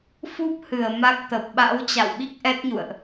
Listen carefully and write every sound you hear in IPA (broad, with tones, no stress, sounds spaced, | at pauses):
f u˦˥ p̚ h ɨ˧˩ ə̯ m a˦˥ k̚ t̪ ə˨˩ p̚ ɓ a̰˧˥ w t͡ɕ a̰˧˨ w ɓ i˦˥ k̚ ʔ ɛ˦˥ t̚ ɲ ṵ˧˨ ə̯ ʔ